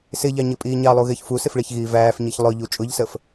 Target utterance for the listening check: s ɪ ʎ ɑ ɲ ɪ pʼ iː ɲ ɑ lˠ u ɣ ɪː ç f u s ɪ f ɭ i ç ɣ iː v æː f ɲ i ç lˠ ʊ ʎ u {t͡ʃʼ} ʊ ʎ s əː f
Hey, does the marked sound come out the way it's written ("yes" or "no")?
yes